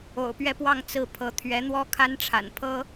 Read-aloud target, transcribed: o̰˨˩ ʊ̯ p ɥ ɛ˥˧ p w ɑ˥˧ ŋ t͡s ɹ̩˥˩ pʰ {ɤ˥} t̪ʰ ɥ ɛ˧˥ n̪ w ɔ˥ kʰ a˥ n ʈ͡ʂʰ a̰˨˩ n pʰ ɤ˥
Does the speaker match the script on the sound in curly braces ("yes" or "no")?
no